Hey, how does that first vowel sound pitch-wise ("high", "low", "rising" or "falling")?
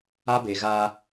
high